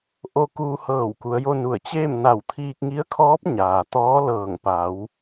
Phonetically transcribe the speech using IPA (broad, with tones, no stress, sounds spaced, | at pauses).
ʔ o˧ k uː˧ h ɤː˧˩ w k u˩˧ ə̯ j o˧ n u˧˩ ə̯ t͡ɕ eː˥˨ m n a˧˩ w t̪ʰ iː˧ k̚ ŋ i˧˥ ə̯ kʰ ɔː˧˥ p̚ ɲ aː˩ t̪ ɔː˧˥ l ɤː˧˩ ŋ p a˩˧ w